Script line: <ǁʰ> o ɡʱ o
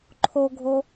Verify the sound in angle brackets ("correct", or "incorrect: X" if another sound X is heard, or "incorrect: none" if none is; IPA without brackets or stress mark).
incorrect: ǃʰ